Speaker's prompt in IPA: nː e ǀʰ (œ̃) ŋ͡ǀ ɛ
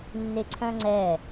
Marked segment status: correct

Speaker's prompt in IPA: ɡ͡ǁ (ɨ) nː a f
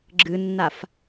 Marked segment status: correct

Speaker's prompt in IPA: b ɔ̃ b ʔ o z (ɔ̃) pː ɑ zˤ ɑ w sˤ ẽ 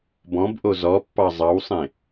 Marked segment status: incorrect: ɔ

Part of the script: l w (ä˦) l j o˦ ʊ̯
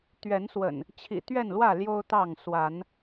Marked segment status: incorrect: ä˥˨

